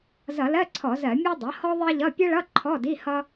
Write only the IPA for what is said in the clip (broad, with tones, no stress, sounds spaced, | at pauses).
z ʌ˧˩˧ l ɜ˧˥˧ ǀʰ ɔ˧˩˧ z ɜ˧˩˧ mʲ ɔ˥ dˤ ʌ˩˥ h ɔ˥ ðˤ ɜ˥ ʎ ʌ˧˥˧ pʲ ʌ˥ ɭ ʌ˧˥˧ ǃʰ ɔ˧˥˧ d i˧˥˧ h ʌ˥